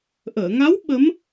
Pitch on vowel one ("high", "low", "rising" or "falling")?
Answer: low